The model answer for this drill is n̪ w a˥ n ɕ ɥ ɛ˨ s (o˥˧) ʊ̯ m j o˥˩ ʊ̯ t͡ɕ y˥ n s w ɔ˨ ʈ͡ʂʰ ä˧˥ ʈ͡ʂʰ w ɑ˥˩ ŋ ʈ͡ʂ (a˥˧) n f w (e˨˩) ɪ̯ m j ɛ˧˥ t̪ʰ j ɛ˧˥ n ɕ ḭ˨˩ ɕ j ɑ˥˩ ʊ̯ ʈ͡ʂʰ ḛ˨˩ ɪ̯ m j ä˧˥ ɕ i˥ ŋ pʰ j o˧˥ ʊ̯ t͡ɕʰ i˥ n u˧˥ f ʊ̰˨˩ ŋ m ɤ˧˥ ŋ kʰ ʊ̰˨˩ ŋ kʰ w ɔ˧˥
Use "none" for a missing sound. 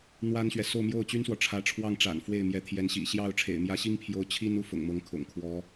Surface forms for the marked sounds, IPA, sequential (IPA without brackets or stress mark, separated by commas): o˥˧, a̰˨˩, e˥˩